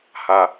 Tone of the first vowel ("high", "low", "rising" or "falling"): low